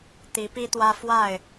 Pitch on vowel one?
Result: rising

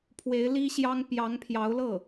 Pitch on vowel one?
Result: rising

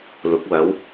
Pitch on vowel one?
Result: rising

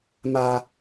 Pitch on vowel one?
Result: high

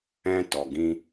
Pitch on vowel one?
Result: high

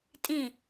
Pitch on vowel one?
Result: falling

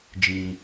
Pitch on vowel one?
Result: low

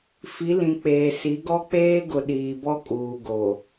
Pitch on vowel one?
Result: rising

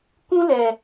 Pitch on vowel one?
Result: high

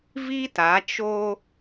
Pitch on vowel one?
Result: high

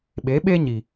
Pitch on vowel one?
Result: rising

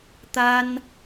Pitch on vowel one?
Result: high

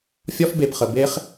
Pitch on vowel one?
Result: high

